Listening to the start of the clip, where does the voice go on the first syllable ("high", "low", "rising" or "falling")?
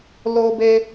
high